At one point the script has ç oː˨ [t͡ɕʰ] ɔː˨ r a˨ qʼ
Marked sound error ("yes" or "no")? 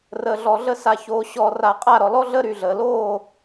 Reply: yes